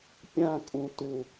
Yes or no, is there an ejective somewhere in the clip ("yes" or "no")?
yes